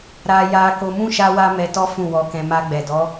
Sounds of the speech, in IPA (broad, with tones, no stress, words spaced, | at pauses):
ɾa˧ ja˧ko˧ mũ˦ ʃa˦wa˦mɛ˧tɔ˦ fũ˦˨wɔ˧kɛ̃˧ ma˧ɡ͡bɛ˨dɔ˨˦